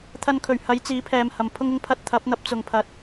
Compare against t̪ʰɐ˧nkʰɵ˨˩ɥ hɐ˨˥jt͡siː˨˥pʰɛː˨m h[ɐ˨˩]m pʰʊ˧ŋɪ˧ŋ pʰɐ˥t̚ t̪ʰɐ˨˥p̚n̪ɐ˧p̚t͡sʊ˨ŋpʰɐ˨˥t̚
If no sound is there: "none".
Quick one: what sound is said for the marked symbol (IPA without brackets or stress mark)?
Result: ɐ˨